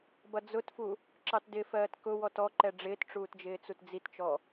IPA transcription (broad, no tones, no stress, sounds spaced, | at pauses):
b ʌ d͡z ʊ t f u | ǁ ɑ t d ɪ f ɜː t k ʊ w ɔ t ɔ ǃ ɛ ɖ͡ʐ ɪː t ʈ͡ʂ uː t d͡ʒ ɪː t͡s u t d͡z i t t͡ʃ ɔ